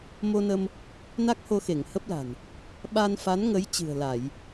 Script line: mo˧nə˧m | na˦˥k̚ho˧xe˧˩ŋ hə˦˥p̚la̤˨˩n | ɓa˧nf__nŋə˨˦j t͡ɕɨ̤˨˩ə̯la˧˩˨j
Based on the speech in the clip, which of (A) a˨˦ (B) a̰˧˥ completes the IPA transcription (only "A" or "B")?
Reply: A